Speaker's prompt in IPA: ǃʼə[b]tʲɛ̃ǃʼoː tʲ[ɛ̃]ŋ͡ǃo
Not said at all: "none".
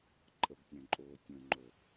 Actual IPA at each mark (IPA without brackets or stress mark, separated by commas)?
b, ə̃